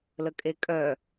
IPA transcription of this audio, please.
l ə kʼ e kʼ œ

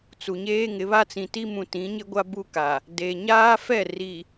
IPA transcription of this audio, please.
t͡s u˨ ɲ eː˦ ŋ ɪ˨˦ β a˦ t͡s ĩ˨ t i˦ m ũ˨ t ĩ˨˦ ɲ ɪ˦ ɡʷ a˦ b u˦ k a˨ | d e˨ ɲ aː˦ f ɛ˦˨ r i˨

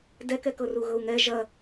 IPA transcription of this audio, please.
d ɛ k ɛ k ɤ r u ɣ ɤ u̯ ŋ ɛ ʒ ɐ

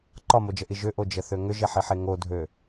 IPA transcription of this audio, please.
ǃ ɒ m o d͡ʒ ə ʔ i ʒ ʏ ʔ o d͡ʒ ə θ ø ŋ ʏ ʒ e ħ i ħ e ŋ o dʱ ø

